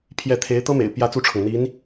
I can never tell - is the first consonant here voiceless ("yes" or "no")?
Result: yes